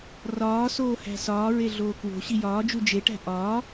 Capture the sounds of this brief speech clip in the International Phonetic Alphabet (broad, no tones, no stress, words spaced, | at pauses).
rɒː soːhæ̤sɒː ɹeɮoːkwo̤ ɕijɒːd͡ʒu d͡ʒeʈæ̤ ʔɒː